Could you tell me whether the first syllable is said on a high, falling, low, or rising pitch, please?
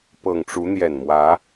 low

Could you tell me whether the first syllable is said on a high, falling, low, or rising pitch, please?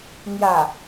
low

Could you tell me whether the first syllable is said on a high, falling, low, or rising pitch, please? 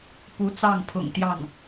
rising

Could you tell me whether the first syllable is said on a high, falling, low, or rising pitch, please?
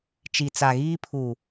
low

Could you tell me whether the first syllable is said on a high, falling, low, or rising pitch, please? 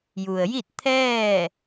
low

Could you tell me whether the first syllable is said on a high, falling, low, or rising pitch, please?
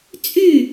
falling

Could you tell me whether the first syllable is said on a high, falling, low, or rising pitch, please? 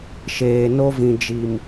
low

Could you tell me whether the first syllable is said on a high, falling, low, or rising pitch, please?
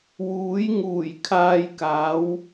rising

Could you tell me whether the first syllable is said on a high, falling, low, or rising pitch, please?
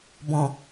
low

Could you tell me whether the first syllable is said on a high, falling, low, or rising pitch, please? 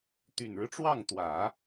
low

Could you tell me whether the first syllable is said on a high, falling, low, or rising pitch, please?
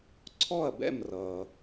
falling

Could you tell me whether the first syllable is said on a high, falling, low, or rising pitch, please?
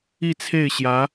falling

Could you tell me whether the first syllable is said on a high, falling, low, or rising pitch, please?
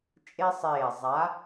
high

